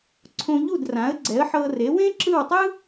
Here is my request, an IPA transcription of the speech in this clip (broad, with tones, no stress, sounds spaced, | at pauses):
ǀʰ õ˧ ʎ u˥˩ d r ã˩˥ ə̯ ɡ͡ǀ ɛ˩˥ ə̯ ħ ɤ˧ r e˩˥ w ẽ˥ ǁ ɯ˥˩ w tˤ ɯ˥